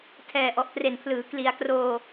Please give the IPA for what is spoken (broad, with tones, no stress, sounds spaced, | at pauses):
tʰ ɛː˨˩ ʔ ɔ˨˩ ʔ t r e˨˩ n pʰ l ɯː˩˦ k l i˩˦ a̯ k r oː˧